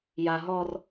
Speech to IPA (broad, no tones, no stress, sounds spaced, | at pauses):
j a ɦ ɔ r